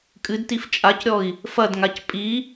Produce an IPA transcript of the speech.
kʼ ɨ d t i f t͡ʃʼ a c ɾʲ ɔ i̯ | f ɐ d ŋ a c pʼ i

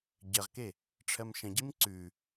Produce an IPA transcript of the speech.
ɟ ɜ ʁ k e | ʈ͡ʂʰ ɜ m ʃ ə̃ ɟ i m ǀ ʉ

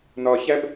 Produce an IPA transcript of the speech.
n ɒ ç æ b

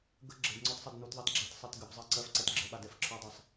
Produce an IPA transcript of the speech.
ɡ ə ɡ͡ǁ ə d ŋ͡ǀ ɔ t sˤ ɜ d n u t ðˤ ɛ t ɡ͡ǁ a t sˤ ɜ t ɡ ə b zˤ ɜ ǀ ɜ f ǀ ɛ t ɡ͡ǁ ə ɓ a d ɛ f ǁʰ ɔ dˤ ɜ sˤ

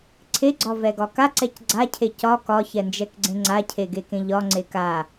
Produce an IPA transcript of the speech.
ǀʰ e ɡ͡ǀ ɒ v ɛ ɡ ɒ k a ǀ ɛ c ɡ͡ǀ a cʰ e c ɒ k ɒ ç ɛ n d͡ʒ ɛ k ɡ͡ǀ ẽ ŋ͡ǀ a cʰ e ɡ e k ẽ ʎ ɒ ŋ͡ǀ e k a

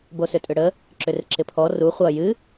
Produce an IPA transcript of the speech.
b o s ʏ tʼ ʏ ɽ ə | ǁ ʏ r ɪ ǁ ɪ pʰ ɔ r u χʷ ʌ j ɨ

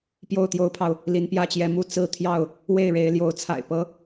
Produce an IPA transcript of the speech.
p j o˥˨ ʊ̯ t̪ j o˦ ʊ̯ pʰ ɑ˨ ʊ̯ | l i˨˦ n p j ä˦ t͡ɕ j ɛ˨˦ m u˥˨ t͡s ɹ̩˥˨ t̪ʰ j ɑ˥˨ ʊ̯ | w e˥˨ ɪ̯ ɻ e˨˦ ɪ̯ l j o˨˦ ʊ̯ t͡sʰ a̰˨˩ ɪ̯ p ɤ˦

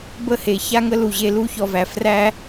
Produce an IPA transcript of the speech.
b ə˦˨ h e˨ ç a˦ ŋ ə˦ l u˨ ʑ e˧ l u˦ ç ɔ˧ v æ˨ f r æ˦

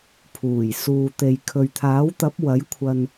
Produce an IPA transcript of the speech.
pʰ uː˨˩ j s uː˨ t̪ e˨ j kʰ ɵ˨ ɥ t̪ʰ aː˨˥ w t̪ ɐ˨˥ p̚ w ɐ˨˥ j kʷʰ ɐ˨ n

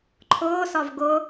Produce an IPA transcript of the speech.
ǃʰ ʊː s ɒ v ɡ ʊ

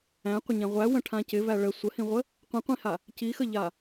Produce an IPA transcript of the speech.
æ̃ qʷ ə ɲ æ̃ ʁʷ æ w ə̃ ʈʰ ã c ɪ v æ ɭ ə sʷ ə h ĩ ʁʷ ə | qʷ ĩ qʷ ĩ h a | c i x ə ʎ a

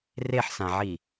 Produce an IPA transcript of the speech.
r e ħ s ã ʕ i

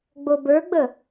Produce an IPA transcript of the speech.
ɡ͡b o b ə˞ ɡ͡b ə

